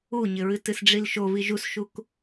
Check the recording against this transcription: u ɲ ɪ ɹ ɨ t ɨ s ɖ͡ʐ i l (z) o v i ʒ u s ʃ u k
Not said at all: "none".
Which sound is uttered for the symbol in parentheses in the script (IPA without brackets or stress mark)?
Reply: ʃ